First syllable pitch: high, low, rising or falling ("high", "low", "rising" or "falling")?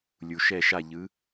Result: low